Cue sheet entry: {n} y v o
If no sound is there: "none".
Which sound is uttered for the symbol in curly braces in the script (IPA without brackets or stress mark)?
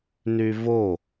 n